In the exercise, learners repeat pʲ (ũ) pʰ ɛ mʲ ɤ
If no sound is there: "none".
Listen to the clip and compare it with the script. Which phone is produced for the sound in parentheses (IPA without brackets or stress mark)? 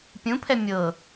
ũ